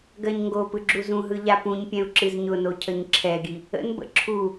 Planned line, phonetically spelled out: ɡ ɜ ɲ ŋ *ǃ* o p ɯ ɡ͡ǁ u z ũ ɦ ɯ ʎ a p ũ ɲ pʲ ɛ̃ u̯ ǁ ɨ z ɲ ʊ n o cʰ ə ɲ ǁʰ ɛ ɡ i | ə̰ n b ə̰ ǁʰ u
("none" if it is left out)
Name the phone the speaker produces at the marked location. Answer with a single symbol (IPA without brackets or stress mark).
ɡ